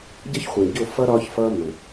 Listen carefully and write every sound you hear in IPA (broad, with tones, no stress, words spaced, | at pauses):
ɟʌ˦çχʷĩ˨ɟo˦˨fʌ˦ ɾɒ˦ç fʌ˦ mə̃˨